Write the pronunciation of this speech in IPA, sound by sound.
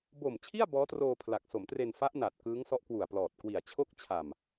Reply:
b o˨˩ m t͡ɕʰ i˥˩ a̯ b ɔː˦˥ t r oː˧ pʰ l a˨˩ k̚ s o˩˦ m t r e˧ n f a˦˥ ʔ n a˨˩ t̚ k ɯː˦˥ ŋ s ɔ˦˥ ʔ k w u˨˩ a̯ p l ɔː˨˩ t̚ k w i˨˩ a̯ t͡ɕʰ o˦˥ k̚ t͡ɕʰ a˨˩ m

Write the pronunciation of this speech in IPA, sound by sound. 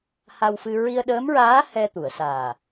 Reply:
h a˧ w f ɨ˧ ɹ i˧ ə̯ ɗ əː˧˥ m ɹ aː˧˥ h ɛ˧ t̪ u˨˩˨ ə̯ s aː˨˩

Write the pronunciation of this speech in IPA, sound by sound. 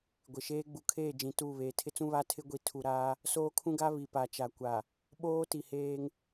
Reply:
ɡʷ ɪ˨ ʃ eː˦ ɡ͡b u˨ kʰ eː˦˨ d͡ʒ ĩ˨ t u˦˨ β eː˨ tʰ ɪ˦ t͡s ũ˦ β a˦ tʰ ɪ˦ ɡʷ i˨ tʰ u˨ ɾ aː˦ | s oː˦ kʰ ũ˦ ɡ a˦ β i˨ p a˨ t͡ʃ a˨ kʷ a˨ | ɓ oː˦ t i˨ h eː˦ ŋ

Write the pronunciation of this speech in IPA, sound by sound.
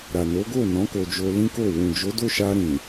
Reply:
ɾ a˨ n o˨˦ ɡ o˦˨ n ɔ̃˨˦ k o˧ d͡ʒ o˧ l ĩ˦ k o˦˨ w ũ˨ d͡ʒ o˨˦ d o˦˨ ʃ a˧ ɾ ĩ˨

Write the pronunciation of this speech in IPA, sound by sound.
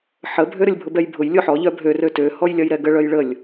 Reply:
ħ ə bʱ ø ɾ ə lʲ bʱ ʊ b ɛ j bʱ ʊ j lʲ ʊ ħ ɔ ʎ œ bʱ ø r ø t ø h ɔ j lʲ ɐ j ɾ ɛ ɡ ə ɭ œ j ɭ ə lʲ

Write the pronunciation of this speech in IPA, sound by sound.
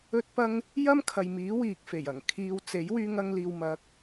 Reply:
ɵ˧ t̚ p ɐ˧ ŋ | j ɐ˥ m kʰ ɐ˨ j m iː˨˥ w iː˨ k̚ f e˨˩ j ɐ˨˩ ŋ kʰ iː˨ w t͡s e˨˥ j w yː˧ ŋ ɐ˧ ŋ l iː˨ w m ɐ˨˥ k̚

